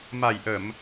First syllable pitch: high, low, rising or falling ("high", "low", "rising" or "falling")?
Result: low